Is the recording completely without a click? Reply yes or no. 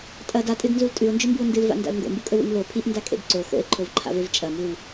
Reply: no